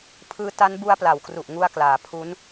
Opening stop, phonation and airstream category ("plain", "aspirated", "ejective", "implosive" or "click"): aspirated